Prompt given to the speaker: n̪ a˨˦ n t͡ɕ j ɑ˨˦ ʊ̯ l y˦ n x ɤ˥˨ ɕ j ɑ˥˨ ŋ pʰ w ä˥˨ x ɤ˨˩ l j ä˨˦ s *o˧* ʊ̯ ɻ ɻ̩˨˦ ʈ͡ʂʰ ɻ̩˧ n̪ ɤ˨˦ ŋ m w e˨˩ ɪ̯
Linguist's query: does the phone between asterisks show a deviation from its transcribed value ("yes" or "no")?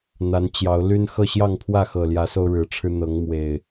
no